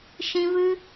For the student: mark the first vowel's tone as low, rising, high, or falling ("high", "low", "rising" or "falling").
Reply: high